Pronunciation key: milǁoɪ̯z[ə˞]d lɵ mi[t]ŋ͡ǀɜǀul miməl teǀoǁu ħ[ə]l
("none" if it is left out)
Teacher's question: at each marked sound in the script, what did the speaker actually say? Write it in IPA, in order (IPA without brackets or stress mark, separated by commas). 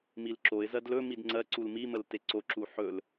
ɜ, d, ɵ